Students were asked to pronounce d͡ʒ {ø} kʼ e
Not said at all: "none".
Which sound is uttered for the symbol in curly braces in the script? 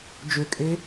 ø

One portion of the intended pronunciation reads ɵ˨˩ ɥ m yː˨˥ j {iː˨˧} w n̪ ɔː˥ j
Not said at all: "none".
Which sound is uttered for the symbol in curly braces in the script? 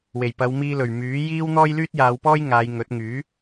iː˥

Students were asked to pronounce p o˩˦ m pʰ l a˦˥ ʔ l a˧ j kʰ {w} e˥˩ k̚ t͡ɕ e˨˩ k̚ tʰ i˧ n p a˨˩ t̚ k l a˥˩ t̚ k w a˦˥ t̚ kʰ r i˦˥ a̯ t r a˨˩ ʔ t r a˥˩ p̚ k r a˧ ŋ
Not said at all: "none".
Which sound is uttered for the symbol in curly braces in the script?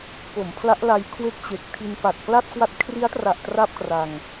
w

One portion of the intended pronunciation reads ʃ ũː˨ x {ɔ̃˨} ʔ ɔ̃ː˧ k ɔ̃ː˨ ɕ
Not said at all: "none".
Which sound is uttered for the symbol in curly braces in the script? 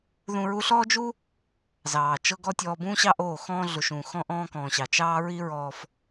ɔ̃˧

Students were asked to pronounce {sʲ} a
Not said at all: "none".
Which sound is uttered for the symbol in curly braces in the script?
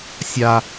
sʲ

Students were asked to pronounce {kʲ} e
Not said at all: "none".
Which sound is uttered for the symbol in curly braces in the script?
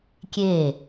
kʲ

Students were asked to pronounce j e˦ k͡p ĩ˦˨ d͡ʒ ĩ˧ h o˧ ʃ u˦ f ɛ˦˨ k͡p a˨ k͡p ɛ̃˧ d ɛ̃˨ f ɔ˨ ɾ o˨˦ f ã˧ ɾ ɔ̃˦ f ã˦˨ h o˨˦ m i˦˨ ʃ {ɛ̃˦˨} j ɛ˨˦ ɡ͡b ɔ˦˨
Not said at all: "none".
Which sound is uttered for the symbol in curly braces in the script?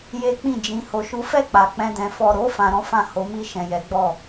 ɛ̃˨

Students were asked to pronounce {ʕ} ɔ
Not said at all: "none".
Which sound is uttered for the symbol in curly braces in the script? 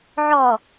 ʕ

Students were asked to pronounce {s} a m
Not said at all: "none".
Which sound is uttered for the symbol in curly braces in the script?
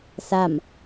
s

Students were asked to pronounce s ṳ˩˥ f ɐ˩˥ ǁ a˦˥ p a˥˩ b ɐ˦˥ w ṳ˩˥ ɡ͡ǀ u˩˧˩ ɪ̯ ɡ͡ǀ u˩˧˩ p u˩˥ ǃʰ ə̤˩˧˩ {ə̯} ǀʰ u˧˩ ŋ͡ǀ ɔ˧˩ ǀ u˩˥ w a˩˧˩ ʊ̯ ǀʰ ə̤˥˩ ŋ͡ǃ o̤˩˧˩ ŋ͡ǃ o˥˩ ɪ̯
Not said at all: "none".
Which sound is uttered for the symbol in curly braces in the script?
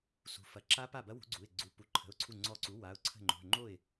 ʊ̯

